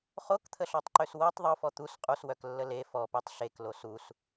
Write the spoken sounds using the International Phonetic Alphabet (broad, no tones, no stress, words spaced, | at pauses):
χokt̪ʰəɬɔtˤǃøs wotˤ ðˤofɔ t̪us qʼuswœklːə le fɔpetˤ ɬeklo sus